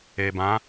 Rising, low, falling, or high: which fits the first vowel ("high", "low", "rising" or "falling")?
low